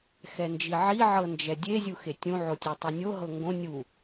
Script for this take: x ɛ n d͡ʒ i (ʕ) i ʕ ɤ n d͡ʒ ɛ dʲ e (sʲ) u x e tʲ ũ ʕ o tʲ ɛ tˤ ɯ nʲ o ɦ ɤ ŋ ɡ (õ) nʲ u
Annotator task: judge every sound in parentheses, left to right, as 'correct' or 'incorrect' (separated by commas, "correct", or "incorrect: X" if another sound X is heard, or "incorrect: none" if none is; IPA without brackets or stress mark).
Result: correct, incorrect: zʲ, correct